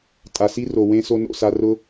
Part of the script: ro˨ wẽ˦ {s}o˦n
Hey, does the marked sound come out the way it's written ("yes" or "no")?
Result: yes